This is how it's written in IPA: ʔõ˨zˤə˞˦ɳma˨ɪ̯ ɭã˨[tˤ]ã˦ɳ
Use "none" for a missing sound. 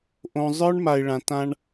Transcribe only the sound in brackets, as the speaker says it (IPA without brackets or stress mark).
t